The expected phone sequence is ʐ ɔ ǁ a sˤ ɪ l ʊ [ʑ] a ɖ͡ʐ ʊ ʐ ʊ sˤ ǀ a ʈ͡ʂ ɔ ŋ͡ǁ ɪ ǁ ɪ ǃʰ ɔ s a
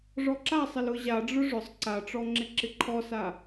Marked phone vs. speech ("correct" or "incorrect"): correct